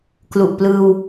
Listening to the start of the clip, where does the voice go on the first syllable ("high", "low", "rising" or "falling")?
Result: low